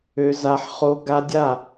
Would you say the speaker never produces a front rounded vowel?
no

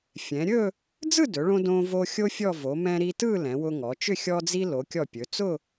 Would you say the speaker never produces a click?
yes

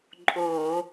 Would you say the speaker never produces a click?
no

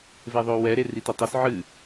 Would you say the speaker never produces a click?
yes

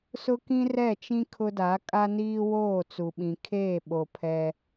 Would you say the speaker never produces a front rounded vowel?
yes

